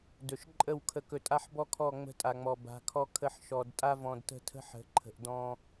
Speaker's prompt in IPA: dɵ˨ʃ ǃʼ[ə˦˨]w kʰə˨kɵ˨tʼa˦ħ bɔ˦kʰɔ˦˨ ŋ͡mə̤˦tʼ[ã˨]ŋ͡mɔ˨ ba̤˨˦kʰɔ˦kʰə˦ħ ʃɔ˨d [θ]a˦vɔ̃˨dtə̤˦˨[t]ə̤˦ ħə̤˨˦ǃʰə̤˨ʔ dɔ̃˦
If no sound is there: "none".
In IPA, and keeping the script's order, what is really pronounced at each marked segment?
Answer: ə˦˨, a˨, tʼ, tʰ

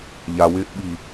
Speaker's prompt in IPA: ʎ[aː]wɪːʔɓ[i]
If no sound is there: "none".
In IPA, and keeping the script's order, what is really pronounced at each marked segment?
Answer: a, i

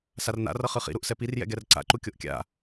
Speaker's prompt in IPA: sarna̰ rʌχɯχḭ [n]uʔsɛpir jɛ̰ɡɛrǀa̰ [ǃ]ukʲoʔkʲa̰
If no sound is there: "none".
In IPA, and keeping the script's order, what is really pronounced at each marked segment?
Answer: ɾ, ǃ

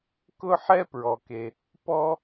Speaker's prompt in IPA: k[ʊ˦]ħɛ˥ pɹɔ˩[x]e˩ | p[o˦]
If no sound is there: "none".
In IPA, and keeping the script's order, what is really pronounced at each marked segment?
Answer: ʊ˥, k, ɔ˦

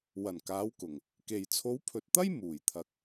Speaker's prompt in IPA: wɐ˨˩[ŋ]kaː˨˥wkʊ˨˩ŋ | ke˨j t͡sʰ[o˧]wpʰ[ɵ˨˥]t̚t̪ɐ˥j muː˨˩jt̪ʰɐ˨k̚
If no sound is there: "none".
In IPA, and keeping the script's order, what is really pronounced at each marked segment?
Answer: n, o˨˥, ɵ˨

